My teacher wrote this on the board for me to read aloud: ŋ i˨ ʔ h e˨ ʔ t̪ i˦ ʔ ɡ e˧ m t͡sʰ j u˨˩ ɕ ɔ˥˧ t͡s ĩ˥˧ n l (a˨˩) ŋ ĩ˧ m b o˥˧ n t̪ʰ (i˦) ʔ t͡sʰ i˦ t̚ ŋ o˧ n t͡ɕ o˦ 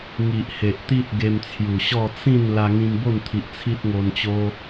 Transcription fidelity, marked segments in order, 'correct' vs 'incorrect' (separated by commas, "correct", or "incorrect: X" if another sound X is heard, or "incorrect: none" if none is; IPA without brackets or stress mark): incorrect: a˧, incorrect: i˨